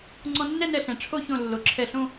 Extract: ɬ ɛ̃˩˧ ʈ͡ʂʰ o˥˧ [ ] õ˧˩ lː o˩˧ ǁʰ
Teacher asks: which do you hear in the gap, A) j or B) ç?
B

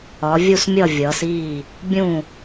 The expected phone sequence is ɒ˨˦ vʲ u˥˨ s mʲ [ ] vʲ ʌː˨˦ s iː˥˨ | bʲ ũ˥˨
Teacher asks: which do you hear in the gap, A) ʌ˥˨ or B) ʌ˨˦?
A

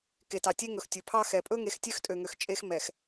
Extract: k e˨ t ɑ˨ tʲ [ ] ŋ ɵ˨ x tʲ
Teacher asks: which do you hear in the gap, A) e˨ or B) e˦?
B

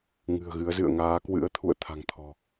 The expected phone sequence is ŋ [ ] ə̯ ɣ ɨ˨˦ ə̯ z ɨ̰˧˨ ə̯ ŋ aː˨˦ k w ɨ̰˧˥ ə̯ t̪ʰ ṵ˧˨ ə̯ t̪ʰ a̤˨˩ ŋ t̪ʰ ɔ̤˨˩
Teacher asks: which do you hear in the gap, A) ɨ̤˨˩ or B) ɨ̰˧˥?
A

